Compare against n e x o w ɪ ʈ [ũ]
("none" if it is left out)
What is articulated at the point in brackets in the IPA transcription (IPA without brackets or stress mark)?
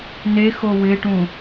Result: ũ